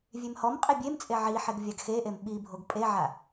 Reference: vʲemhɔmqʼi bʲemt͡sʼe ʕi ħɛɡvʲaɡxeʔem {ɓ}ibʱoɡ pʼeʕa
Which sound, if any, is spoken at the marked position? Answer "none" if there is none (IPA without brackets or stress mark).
ɓ